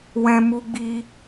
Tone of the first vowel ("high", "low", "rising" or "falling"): high